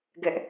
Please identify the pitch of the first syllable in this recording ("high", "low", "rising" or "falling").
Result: high